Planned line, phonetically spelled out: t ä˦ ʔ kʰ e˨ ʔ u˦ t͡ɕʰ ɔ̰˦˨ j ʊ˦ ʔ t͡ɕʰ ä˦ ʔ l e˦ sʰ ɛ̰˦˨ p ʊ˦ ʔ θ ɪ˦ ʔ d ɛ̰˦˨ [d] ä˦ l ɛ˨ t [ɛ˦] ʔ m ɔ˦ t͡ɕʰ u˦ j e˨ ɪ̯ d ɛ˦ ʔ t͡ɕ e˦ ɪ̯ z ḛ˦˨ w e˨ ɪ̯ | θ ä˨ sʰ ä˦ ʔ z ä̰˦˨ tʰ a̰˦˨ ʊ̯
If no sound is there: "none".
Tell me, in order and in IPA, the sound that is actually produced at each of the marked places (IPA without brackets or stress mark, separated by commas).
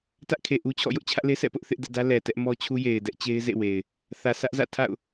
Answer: d, ɛ˦